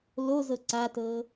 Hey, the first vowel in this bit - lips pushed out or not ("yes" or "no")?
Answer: yes